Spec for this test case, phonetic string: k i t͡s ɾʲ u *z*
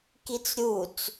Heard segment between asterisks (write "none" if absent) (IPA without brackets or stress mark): t͡s